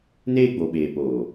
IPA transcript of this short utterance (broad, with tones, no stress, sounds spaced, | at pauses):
n eː˦ ɡ͡b o˨ ɓ eː˨ p oː˨